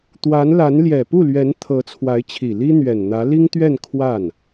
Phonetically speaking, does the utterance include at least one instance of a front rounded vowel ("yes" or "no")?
no